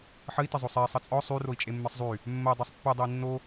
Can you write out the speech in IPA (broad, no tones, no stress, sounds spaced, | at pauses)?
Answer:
ħ ə i̯ t ə zˤ o sˤ e i̯ sˤ ə t͡sʼ ɔ sˤ y r o i̯ t͡ʃʼ e mː e sˤ zˤ y | mː ə i̯ dˤ y sˤ pː e dˤ ə i̯ nː o